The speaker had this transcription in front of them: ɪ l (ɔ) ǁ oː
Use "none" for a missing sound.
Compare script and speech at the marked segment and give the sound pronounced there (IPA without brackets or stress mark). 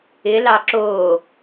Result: ɑ